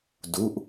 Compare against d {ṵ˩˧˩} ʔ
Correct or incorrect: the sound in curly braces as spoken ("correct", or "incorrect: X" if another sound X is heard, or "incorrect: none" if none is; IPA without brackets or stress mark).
incorrect: u˩˧˩